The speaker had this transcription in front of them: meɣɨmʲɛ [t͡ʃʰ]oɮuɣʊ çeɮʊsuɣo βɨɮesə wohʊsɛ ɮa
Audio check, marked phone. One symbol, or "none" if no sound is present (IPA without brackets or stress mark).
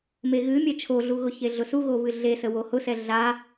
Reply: t͡ʃʰ